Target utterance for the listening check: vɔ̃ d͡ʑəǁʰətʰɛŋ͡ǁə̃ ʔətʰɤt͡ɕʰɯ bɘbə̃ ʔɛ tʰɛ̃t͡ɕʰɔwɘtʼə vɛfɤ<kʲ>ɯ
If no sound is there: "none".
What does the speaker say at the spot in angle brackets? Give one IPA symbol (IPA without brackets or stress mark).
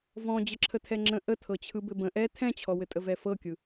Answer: kʲ